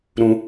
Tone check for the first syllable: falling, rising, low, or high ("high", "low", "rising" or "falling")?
low